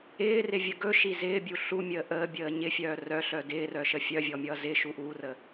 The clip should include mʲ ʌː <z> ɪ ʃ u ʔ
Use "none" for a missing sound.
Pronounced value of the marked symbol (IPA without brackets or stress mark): z